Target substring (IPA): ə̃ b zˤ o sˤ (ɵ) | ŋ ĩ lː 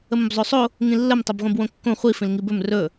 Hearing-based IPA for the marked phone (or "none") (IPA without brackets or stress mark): o